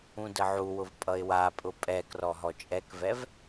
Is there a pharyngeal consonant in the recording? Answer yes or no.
yes